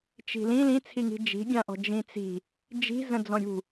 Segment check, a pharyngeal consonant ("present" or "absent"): absent